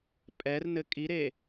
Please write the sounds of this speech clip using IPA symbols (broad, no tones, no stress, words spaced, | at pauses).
pʼɛrnɘ kʼiɾe